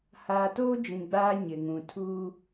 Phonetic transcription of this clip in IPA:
haː˨toː˦ d͡ʒĩ˨ɡ͡baː˦ ɲɪ˨ŋũ˨tʰuː˦

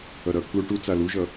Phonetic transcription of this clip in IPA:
ʌɾʌkʰlu ʈut͡sa luʒʌ

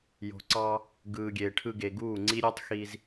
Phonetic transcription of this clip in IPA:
jo̤˨ǀɑ˧ | ɡɯː˨ɡʲeː˨ʈʰɯ˧ɡe˨ ɡuː˦˨ŋ͡ǀi˦ ɾʲe˦tˤxi˧z

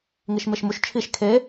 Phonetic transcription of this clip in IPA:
ŋiʃmeʃmuʃ t͡ʃʰiʃ kʰe

